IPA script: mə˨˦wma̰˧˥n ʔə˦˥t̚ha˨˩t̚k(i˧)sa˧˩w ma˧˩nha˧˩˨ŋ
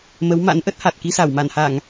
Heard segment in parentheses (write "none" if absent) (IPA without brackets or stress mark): i˧